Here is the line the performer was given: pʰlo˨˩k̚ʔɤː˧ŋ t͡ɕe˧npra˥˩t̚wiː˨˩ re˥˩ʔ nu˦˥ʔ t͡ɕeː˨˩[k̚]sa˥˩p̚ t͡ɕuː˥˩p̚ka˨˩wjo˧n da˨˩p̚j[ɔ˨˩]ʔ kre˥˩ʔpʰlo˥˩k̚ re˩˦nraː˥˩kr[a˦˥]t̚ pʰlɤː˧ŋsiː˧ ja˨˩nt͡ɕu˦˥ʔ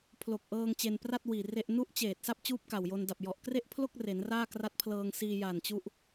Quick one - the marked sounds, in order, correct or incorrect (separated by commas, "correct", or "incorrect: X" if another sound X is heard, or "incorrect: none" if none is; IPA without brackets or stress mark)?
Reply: incorrect: t̚, correct, correct